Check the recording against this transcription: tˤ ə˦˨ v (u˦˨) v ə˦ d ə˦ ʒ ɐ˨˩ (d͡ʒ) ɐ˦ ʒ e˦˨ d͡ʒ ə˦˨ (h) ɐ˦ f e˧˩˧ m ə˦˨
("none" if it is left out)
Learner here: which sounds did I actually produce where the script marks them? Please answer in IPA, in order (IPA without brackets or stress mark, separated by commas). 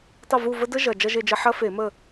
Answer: u˦˨, d͡ʒ, ħ